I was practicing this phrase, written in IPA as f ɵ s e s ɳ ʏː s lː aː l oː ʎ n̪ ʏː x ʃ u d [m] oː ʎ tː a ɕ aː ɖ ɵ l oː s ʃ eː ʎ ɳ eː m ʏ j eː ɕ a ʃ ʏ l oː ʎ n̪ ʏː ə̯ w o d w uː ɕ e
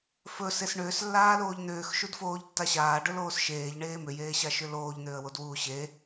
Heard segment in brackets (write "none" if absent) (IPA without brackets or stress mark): f